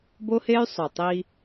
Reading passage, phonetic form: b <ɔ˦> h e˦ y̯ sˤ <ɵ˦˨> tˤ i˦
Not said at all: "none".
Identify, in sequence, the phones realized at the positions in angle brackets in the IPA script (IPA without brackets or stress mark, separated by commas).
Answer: o˦, ɵ˨